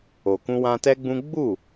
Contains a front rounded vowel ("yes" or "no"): no